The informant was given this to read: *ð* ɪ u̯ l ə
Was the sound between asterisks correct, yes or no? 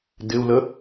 no